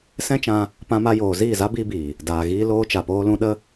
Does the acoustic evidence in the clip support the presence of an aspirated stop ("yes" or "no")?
no